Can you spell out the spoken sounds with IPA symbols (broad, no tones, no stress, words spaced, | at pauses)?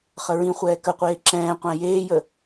χəɹĩχʷɛː kəqʷeː ǁɛ̃ːqʷæ̃ jeːjə